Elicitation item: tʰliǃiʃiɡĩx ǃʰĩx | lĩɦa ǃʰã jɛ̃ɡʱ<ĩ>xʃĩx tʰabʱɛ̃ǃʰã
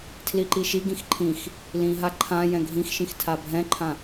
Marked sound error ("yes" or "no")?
no